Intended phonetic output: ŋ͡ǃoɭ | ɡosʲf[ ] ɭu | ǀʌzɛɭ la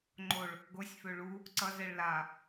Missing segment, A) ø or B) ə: A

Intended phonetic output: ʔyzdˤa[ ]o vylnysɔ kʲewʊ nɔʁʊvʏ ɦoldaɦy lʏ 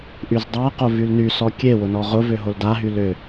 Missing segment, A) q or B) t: A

